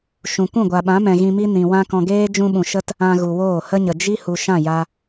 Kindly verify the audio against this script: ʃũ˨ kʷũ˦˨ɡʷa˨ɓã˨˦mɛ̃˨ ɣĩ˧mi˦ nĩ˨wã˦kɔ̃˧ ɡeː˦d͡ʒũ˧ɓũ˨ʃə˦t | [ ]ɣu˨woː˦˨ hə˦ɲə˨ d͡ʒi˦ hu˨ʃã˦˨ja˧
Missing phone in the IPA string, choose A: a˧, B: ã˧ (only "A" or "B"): B